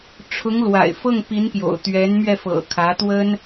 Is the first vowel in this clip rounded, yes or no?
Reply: yes